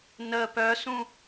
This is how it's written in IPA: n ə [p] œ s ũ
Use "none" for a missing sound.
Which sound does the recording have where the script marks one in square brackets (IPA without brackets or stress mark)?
p